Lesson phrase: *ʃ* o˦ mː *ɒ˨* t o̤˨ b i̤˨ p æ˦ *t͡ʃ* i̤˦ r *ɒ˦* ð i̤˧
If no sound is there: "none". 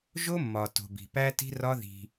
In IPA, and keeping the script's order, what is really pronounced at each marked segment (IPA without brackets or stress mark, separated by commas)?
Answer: ʒ, ɒ˨, t, ɒ˦